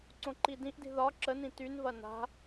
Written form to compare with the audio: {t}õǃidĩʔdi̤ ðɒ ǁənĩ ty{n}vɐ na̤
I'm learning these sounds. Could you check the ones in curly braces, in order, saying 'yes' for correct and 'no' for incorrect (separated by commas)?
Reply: no, yes